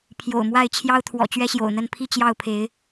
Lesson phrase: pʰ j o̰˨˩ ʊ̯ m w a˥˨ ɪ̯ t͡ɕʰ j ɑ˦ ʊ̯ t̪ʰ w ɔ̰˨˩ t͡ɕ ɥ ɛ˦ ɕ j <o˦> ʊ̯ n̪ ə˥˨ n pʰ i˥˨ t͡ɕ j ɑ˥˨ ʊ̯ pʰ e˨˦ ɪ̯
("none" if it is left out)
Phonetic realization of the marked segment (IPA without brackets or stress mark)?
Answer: o̰˨˩